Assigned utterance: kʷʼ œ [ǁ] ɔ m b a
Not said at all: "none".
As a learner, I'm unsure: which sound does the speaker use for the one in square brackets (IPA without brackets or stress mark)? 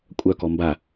k